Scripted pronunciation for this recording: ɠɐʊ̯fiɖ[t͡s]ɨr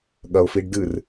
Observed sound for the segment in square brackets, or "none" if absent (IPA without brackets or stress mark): d